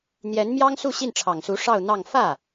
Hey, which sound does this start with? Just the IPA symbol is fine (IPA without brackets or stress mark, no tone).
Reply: n̪